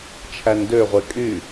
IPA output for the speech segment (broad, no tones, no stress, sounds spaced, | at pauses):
t͡ʃʰ æ n d ø ʁʷ e kʼ y